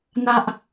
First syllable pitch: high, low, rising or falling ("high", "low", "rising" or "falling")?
high